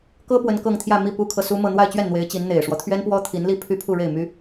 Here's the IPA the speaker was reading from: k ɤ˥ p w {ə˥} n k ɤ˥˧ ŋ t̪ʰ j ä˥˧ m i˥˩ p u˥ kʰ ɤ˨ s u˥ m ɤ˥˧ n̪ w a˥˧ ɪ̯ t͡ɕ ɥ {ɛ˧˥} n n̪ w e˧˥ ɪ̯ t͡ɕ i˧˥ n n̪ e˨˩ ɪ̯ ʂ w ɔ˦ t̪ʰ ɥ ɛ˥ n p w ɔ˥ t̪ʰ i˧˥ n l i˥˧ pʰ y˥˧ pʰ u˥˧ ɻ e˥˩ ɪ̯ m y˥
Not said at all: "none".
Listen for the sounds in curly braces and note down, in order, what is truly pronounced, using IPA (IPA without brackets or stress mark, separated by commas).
ə˥, ɛ˥˩